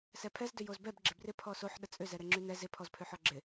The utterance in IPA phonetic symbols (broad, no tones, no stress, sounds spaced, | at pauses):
s ɛ pʰ ɛ z d ʏ j o z b ɛ b ɡ͡ǁ ɪ b r ɪ pʰ ɔ s o ħ ɗ ə t͡sʼ ʏ z ɛ ɾ ɛ ŋ͡ǁ y n ɛ z ɪ pʰ ɔ z pʰ ʏ ħ ɔ ɡ͡ǁ ɪ